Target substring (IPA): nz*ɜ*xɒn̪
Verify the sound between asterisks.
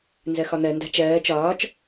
correct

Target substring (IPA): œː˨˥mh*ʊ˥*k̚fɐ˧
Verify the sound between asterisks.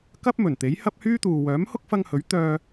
correct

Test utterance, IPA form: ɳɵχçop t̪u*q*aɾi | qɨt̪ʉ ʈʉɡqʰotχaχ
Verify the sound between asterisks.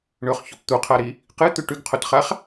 incorrect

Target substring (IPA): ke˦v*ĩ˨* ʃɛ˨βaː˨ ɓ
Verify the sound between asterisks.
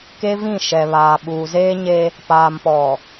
incorrect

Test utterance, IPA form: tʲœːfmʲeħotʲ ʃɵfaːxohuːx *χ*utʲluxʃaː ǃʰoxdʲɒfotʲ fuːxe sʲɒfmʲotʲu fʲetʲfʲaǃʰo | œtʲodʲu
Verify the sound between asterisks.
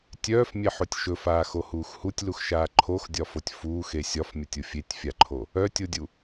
incorrect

